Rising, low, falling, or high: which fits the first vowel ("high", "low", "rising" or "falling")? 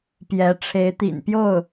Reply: rising